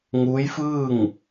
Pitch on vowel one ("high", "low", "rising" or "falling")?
rising